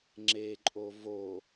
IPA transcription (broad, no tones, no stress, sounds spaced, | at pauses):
ŋ͡ǁ e ǃʼ o v o